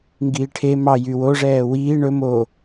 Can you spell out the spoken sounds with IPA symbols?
ŋɡiːʈʰe mɑ jywoʐɛː wiː ɳɵ mo

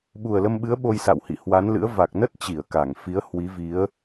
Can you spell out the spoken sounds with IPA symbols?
ɓu˨˩ə̯lə˧mɓɨ˨˦ə̯ ɓo˧jsa̰˧˨whḭ˧˨ hwa˨˦nlɨ̰˧˥ə̯ va˨˩k̚nə˦˥t̚ t͡ɕi˧˩ə̯ka˧˩ŋfi˨˦ə̯ hwi˨˦vi˨˦ə̯

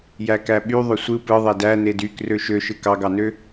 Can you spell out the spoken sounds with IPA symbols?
jækæɓy ðˤøsʷɯ pɯðˤe dæ nedy krøʃøʃɯ kɑɡɑnø

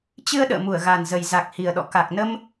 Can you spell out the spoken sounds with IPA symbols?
t͡ɕɨ˧ə̯ ɗə̰ː˧˨mu˧˩ə̯ɣa˨˩nzə˨˩j za˨˩k̚hi˨˩ə̯ɗɔ̰˧˨ ka˨˩k̚nə˧m

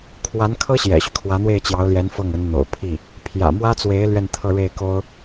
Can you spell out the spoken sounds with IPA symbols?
kʰwa˧˥nkʰɤ˥ ɕjɛ̰˨˩ɕy˦ kʰwä˧˥n̪we˥˩ɪ̯t͡ɕjɑ˧˥ʊ̯ljɛ˧˥n fɤ˥˩ŋ ə˧˥nn̪o̰˨˩ʊ̯pʰi˥˩ | pʰjä̰˨˩mwä˥t͡swe˧˥ɪ̯ lɥɛ˥˧nt̪ʰɤ˥˧ ɻe˥˩ɪ̯ko˥ʊ̯

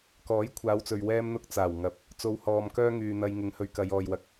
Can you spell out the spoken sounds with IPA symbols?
kɔː˨˥jkʷʰaː˨˧wt͡sɵ˨ɥ wɛː˧mn̪ʊ˧k̚ t͡saː˨˩w ŋɐ˨p̚ | t͡so˨˧whɔː˨mkœː˥ ŋyː˨n̪ɐ˧j ŋɪ˨˧ŋhɵ˧ɥ kɐ˨˧j ɔː˨jwɐ˨˥k̚

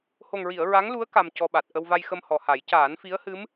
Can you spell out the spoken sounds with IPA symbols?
ho˨˩ŋɹi˨˩˨ə̯ ɹa˧˥ŋlu˧˥ə̯ ka˧mcɔ˧ɓa˨˩t̚ ʔə˧wva˧jxə˧m hɔ˨˩ha˨˩˦j caː˨˩˦nfi˧˥ə̯hɨ˧˥m

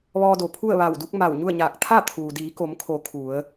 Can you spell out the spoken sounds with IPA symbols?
ʋɔː˧do˩pʰu˥˨ə̯ ʋa˧˩wdu˧˥k̚ma˧˩w ɲu˥˨ə̯ɲaː˧˩k̚ t̪ʰa˥˨t̪ʰuː˩diː˩˧ ko˩˧mkʰo˩˧ kʰu˩˧ə̯

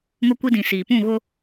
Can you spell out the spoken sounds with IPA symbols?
ŋʊ˦kʷi˦ dĩ˨siː˨ pũ˦˨ɣʊ˦

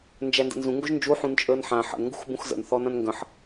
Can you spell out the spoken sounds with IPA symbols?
nd͡ʒændə̰nzũ ŋɡoʒnd͡ʒu ħũnt͡ʃʼəːnħã ħə̰n ŋɡṳxbũxzə̰n θɔnãnŋɡə̃ħ

